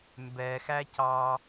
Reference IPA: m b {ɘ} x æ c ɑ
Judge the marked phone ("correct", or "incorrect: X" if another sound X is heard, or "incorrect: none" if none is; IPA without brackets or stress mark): incorrect: ɛ